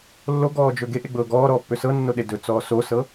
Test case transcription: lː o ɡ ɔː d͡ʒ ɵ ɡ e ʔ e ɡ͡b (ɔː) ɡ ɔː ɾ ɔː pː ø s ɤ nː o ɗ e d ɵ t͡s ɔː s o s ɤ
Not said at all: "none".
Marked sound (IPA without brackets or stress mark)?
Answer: ɤː